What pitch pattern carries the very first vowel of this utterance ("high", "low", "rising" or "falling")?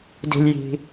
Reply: low